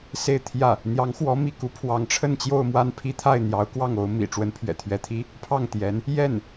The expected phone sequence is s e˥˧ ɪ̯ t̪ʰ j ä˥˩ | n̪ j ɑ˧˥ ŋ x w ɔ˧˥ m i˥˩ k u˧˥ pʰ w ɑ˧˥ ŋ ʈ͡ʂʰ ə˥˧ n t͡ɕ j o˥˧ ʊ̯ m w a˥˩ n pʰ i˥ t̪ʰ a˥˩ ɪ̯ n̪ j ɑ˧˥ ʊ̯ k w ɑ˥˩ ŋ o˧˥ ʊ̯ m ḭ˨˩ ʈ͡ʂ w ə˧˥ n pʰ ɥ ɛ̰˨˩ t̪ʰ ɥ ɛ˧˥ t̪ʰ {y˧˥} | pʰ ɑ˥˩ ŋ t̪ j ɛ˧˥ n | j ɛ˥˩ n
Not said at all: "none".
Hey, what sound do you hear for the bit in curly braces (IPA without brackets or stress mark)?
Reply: i˧˥